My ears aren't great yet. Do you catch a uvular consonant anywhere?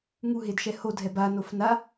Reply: no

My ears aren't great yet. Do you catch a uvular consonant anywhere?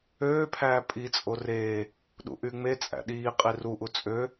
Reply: yes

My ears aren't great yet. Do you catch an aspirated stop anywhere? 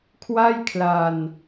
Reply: yes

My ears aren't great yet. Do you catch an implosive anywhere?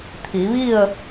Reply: no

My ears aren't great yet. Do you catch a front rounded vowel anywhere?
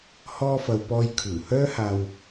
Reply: yes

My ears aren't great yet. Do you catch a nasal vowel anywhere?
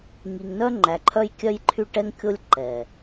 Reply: no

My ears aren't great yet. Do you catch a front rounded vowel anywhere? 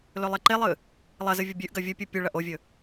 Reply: no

